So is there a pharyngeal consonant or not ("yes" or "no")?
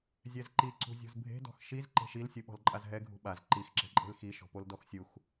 no